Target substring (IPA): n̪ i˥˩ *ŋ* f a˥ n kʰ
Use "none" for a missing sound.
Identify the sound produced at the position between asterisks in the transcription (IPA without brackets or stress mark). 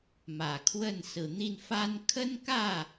n